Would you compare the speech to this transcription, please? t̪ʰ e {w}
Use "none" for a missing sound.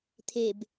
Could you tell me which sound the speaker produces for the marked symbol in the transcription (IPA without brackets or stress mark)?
b